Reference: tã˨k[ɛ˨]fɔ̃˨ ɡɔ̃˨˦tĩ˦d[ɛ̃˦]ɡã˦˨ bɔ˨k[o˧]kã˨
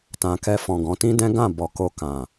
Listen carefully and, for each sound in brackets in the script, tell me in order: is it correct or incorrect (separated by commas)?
incorrect, correct, correct